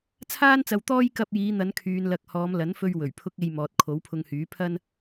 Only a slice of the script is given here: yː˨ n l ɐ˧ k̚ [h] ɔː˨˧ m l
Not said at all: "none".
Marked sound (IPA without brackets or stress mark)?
h